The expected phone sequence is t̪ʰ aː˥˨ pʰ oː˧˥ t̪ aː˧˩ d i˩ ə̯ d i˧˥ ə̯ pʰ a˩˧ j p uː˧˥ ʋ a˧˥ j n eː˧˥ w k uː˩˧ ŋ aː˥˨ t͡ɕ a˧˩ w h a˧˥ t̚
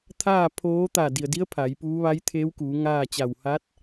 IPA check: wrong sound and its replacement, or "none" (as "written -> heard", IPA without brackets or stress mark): n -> t̪ʰ